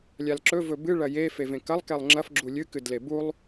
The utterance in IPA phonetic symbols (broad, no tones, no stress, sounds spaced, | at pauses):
lʲ a l ǁ ɵ v ɵ b ɨ ɭ ɐ j e f e v ẽ k ɐ lˠ k e lˠ ŋ͡ǁ ɐ f ɡ͡ǁ u lʲ ɨ k ɨ d l e b u lˠ